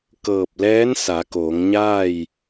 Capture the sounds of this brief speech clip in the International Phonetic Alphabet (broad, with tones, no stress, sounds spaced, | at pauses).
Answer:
k ɤː˧˩ p̚ l ɛː˧˥ n s a˩˧ k oː˩˧ ŋ ɲ aː˥˨ j